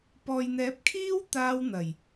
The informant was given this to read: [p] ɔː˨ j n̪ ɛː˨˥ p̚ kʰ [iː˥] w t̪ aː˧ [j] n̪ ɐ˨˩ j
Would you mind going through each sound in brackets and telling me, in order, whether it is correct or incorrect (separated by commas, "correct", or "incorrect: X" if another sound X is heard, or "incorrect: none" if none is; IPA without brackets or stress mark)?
correct, correct, incorrect: w